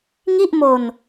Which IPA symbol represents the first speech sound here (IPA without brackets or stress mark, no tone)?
ŋ